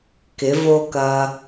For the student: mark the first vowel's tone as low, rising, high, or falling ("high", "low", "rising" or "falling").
rising